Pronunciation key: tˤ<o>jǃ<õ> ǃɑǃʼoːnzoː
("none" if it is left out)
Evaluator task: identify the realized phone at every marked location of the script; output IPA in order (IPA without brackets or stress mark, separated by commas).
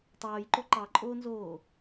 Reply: oː, o